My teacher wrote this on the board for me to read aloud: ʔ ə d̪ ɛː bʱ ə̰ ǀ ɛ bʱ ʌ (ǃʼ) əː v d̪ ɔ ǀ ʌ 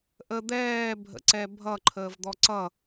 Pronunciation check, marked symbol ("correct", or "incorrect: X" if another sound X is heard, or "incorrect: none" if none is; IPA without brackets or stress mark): incorrect: ǃʰ